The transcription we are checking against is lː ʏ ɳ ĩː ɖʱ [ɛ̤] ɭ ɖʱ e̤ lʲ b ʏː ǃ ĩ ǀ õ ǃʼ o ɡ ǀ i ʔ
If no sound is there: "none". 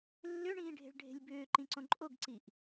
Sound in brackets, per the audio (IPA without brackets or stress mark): e̤